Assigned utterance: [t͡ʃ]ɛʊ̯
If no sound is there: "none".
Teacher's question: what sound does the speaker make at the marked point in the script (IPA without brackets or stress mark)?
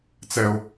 t͡s